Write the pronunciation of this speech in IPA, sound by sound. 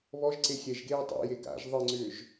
βɔʒ ǀexʲɛʒɡeː tˤa̰je ɡa̰ʒ ðˤɯŋ͡ǀʏːʒ

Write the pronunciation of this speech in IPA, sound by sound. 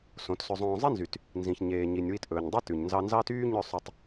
sõ˨˦tsɵ˧zˤõː˧ zˤe˦nzy˨t | nzĩ˨çɲeː˨ɲi˨nʲ wi˧tʔɵː˨ɲdˤe˦ tʉ˨ɲnzɑ˧ nzɑ˦tyː˦ ɲœ˦˨sˤɵ˧tˤ

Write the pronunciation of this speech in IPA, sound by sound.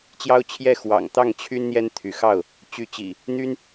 t͡ɕjɑ˦ʊ̯t͡ɕʰjɛ˥˨ xwɑ̰˨˩ŋt̪ɑ˥˨ŋ t͡ɕʰy˦n n̪jɛ˦nt̪ʰy˨˦xɑ˥˨ʊ̯ | t͡ɕy˨˦t͡ɕḭ˨˩ | n̪y˦n

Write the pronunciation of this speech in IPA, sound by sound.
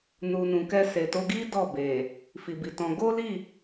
nu˨nũ˨kɛ˧ se˨to˧ɡi˦ dɔ˦˨be˨ | fi˨bi˨tɔ̃˧ ɡo˦li˦˨

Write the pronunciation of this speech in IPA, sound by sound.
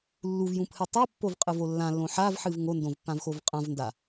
lːuvjũpʰɨ tˤɨpːovqʼɨvo lːãlːõ ħavħɨv ŋondõvpːãvxov qʼãvnda

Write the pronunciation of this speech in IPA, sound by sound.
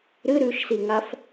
ɾɨ ɾʉʃsiŋaf

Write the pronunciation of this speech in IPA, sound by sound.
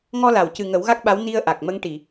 ŋɔ˧la˨˩˨wcɨ˨˩ ŋə˨˩˦wɣa˦˥k̚ɓa˧˥w ni˧ə̯ʔa˨˩k̚ mə˧˥ŋʈi˨˩˨

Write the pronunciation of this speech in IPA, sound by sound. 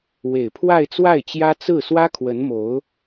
we˨˩ɪ̯pʰwa˥˧ɪ̯ t͡swa˥˩ɪ̯t͡ɕjä˥ t͡sɹ̩˥˩ swä˥ kʰwə˧˥nmo˧˥ʊ̯

